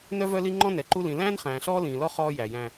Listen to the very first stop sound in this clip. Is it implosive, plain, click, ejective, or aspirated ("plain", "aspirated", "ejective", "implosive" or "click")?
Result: click